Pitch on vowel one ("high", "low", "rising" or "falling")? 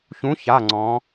rising